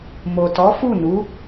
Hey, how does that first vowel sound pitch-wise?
low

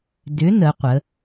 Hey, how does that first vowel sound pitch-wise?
rising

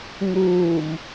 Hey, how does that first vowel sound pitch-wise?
low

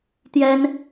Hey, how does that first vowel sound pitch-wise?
high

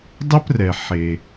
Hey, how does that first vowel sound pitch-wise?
high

